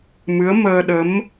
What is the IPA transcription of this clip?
m ɨ˧˥ ə̯ m əː˧ ɗ ə˧˥ m

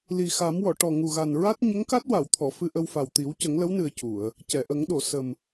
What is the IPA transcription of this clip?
l i˨˩ x a˨˩˦ m w ɔ˨˩˨ ʈ ɔ˨˩ ŋ u˨˩ ɣ a˨˩ n ɹ a˦˥ t̚ ɲ ə˧˥ ŋ k a˦˥ t̚ w a˨˩˨ w t̪ʰ ɔ˨˩˨ f ɨ˧ ʔ ə˧ w f a˨˩ w t̪ i˨˩˦ w c ə˨˩˦ ŋ l ə˧˥ w n ɨ˨˩ ə̯ c u˨˩˨ ə̯ | c ɛ˨˩˨ ʔ ə˨˩˦ ŋ ɗ o˨˩˨ s ə˨˩ m

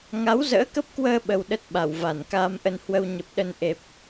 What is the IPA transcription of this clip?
ŋ a˨˦ w z ə̰ː˧˥ k ə˦˥ p̚ k w əː˧ ɓ ə˧ w ɗ ə˦˥ t̚ ɓ a˧˩ w v a˧˩ n k aː˧ m ʔ ə˧ n h w ə˧ w ɲ ə˨˩ p̚ ɗ ə˧ n ʔ e˨˩ p̚

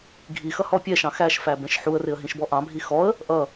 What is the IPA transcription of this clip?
ɡʱ i x ʌ h ɔ pʲ ɛ ʃ ɑ̃ x æ ʃ f æ b ɛ̃ ʃ ħ u ə̯ r ɪ ə̯ ɦ ĩ ʃ b ɔ ʔ ɑ̃ bʱ i x ɔ ə̯ | ʔ ʌ

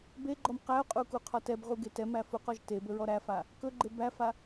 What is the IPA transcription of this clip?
b e ɡ͡ǃ ɔ m q æ ʊ̯ qʼ u k u qʰ ɔ t ɛ b ʁ u ɡ e t ɛ m æ f u q ɔ ʒ t e b ɵ ɹ ɔ ɾ æ f a | k ɵ ɡ͡ǃ e b æ f a

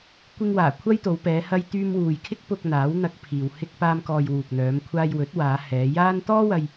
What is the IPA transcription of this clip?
kʷ ɪ˧ ŋ w aː˨˩ kʷʰ ɐ˥ j t̪ o˨˧ w p ɛː˨˧ h ɐ˧ j t̪ yː˧ m w uː˨ j kʰ ɪ˥ k̚ p ʊ˧ k̚ n̪ aː˨˥ w n̪ ɐ˧ k̚ pʰ iː˨ w h ɪ˧ k̚ p aː˧ m k ɔː˨ j w uː˨ k̚ n̪ œː˨˧ m kʷʰ aː˧ j w ɵ˨˥ t̚ w aː˨˧ h ɛː˨˧ j aː˥ n t̪ ɔː˥ w ɐ˧ j

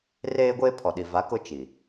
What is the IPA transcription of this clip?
r eː˦ ɡʷ eː˦ pʰ ɔ˨ ɗ i˨ v a˨˦ k ʊ˦ t͡ʃ i˨

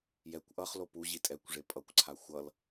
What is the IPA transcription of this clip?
j ɛ kʷ ʔ ʌ χ l o p u ʑ i tʼ ɛ kʷ ʐ e pʼ ʌ kʷ ǀʰ a xʷ ʌ l

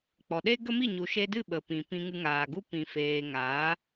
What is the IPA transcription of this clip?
k͡p ɔ˨ ɗ e˦ ɡ ə˦ m i˦˨ ɲ u˨ ʃ e˧ d ɨ˦˨ ɓ ə˨ p ĩ˨ p ĩ˧ ŋ ɨ˧ ŋ aː˨ ɡ u˦ p ĩ˨ f eː˨ ŋ aː˨˦

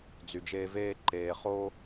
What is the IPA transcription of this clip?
d͡z y˨ d͡ʒ eː˦ v eː˥ ǃ eː˨ χ o˦

